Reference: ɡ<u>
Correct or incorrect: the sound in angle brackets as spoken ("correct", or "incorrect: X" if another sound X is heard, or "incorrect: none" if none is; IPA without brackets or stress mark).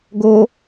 incorrect: o